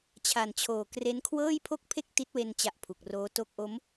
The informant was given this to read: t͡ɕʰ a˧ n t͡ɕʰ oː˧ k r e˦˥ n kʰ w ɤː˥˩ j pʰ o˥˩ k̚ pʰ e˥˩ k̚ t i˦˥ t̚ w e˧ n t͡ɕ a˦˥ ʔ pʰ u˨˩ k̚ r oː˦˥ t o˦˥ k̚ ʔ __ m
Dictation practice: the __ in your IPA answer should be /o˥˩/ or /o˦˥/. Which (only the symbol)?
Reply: o˦˥